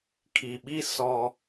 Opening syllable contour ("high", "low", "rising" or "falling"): low